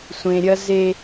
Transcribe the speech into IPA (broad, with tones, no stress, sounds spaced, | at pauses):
sʷ ẽ˨ ɾʲ ɐ˦ z e˦